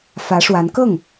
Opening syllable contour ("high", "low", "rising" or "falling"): rising